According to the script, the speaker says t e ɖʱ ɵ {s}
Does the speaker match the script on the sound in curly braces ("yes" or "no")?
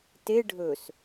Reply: yes